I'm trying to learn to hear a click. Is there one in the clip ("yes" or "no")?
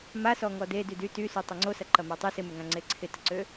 yes